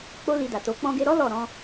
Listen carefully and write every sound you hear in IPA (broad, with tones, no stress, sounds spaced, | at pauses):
k͡p o˦ l i˧ d a˨ t o˨˦ k͡p ɔ̃˧ ɡ e˧ ɾ ɔ˦ l ɔ˦˨ ɾ ɔ̃˧